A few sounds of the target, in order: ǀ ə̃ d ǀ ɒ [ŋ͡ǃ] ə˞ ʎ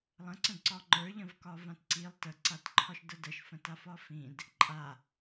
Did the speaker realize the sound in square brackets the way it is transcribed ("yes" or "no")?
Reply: yes